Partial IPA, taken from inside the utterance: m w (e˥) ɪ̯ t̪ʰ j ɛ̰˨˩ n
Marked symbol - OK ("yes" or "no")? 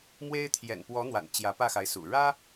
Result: yes